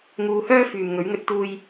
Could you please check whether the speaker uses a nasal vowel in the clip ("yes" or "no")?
no